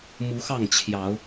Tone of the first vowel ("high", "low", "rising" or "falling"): rising